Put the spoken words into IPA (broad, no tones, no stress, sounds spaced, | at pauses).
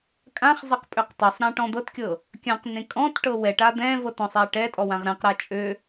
kʼ ã χ zˤ ɛ q pʼ ø q tˤ ɤ sˤ ɾ ã ʈ ɔ̃ d̪ ɤ t kʲ ɤ | kʲ ã q n ẽ kʼ ɔ̃ t ʈ ɤ w ɛ ʈ a d̪ ɛ̃ v ɤ t ɔ̃ sˤ ɛ ʈ ɛ tʼ ɔ w ã ʁ ɾ ɛ̃ q ɾ a t͡ʃʼ ø